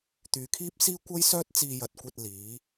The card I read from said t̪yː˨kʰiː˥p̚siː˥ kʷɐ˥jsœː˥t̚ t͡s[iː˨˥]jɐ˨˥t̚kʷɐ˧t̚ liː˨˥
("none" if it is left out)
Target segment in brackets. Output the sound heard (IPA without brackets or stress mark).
iː˧